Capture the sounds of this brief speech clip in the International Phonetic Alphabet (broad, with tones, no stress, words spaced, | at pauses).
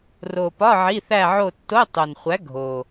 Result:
ro˨˩pɒ˧˥˧ ʕi˧˥˧θæ˥˧ʕo˥˧ tːo˧˥˧ tˤo˨˩nχʷæ˨˥ ɡʱo˨˩